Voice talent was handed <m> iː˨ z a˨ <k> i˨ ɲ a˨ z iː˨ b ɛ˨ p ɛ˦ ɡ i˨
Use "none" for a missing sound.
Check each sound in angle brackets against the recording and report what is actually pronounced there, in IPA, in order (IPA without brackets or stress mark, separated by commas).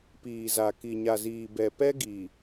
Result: p, k